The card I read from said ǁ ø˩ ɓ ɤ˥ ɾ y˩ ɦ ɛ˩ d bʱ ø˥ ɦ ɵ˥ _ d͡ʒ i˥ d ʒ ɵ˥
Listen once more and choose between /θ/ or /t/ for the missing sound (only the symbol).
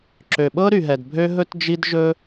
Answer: t